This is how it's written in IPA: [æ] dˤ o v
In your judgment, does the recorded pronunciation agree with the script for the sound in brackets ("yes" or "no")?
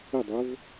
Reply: no